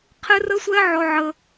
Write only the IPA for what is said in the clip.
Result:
qʰ ɪ˦ r ə˦ sʷ ɛ˦ ʕ ɔ˧ ʕ ə˧

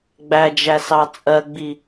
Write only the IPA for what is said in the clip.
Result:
ɡ͡b æ d͡ʒ æ s ɑ t͡sʼ ɜ ɡ͡b i

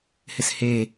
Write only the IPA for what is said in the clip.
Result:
h ɪ s h e

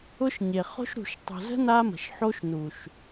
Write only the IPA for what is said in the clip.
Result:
ʊ˦ ʃ ɲ e˨ χ o̤˦ ʃ ɾ ṳ˨ ʃ tˤ o̤˨ z ə̤˦ n a˦ m ə̤˨ ʃ ħ o˦ ʃ n u˨ ʃ

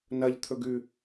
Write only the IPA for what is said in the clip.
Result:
n ɐ ʎ t̪ʰ ɵ ɡ ʉ

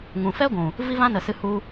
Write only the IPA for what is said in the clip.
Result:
ŋ ũ˨ f ɛ˦ ɡʷ ũ˨ | v i˦ v ã˦ n ə˨ s ɨ˧ h u˧

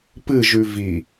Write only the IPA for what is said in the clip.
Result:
p ɨ ʒ ʉ v i

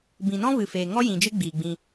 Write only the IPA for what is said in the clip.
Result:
b ĩ˨ n ɔ̃˦ v ɨ˨ f eː˨ ŋ ɔ˦ j ĩ˨ d͡ʒ ɨ˦ ɡ͡b iː˨ ɡ͡b ĩ˧

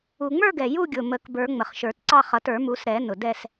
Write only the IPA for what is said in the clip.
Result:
u˨˩ ŋ͡m ə˞˥˧ ɡ ɛ˨˩ j u˥˧ ɡʲ ʊ˨˩ m ə˨˩˦ k b ə˞˨˩˦ ŋ͡m ə˨˩ χ ʃ ə˞˨˩˦ t ǀ ɑ˥˧ χ ʌ˨˩˦ t ə˞˨˩˦ m u˨˩˦ s ɾ ɛ˨˩˦ n ʊ˨˩ d ɛ˥˧ s

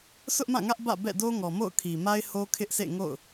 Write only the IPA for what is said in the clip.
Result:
s ʊ˦ ʔ m ã˦˨ ŋ ä˦ ʔ b ä̰˦˨ b ɛ̰˦˨ d o˦ ŋ ɔ˨ m o̰˦˨ ʊ̯ kʰ i˨ m a˦ ɪ̯ h o˦ kʰ ɪ˦ ʔ sʰ ḛ˦˨ ŋ o̰˦˨ ʊ̯

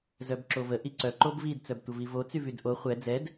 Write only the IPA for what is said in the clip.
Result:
z œ b ǁ o v ə ʔ i ǀ œ ǃ o b v i d t͡s œ b tʷ ə v i v o t͡s y v y d ʔ o χʷ ɛ d͡z ɛ d

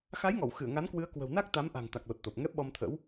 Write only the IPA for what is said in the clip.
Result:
x a˨˦ j ŋ ɔ˧˩ w x ɨ˧˩ ə̯ ŋ a˨˦ n k w ɨ˨˦ ə̯ k w ə̤˨˩ w n a˦˥ k̚ t̪ a˨˦ m ʔ a̤˨˩ ŋ t̪ a˨˩ k̚ l o˨˩ t̚ t̪ o˨˩ p̚ ŋ ɛ˦˥ p̚ ɓ ɔ˧ m t̪ʰ ə̰˧˥ w

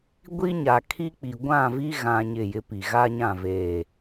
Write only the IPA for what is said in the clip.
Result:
ɡʷ i˦ ɲ a˨ kʰ i˦ k͡p i˨ ɡʷ ã˦˨ v i˦ ɣ ã˦ ɲ ɪ˦˨ j ɪ˦ p i˨ ɣ a˦ ɲ ã˦˨ v eː˨

